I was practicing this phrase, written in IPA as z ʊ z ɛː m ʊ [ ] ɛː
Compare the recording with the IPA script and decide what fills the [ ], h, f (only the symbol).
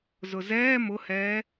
h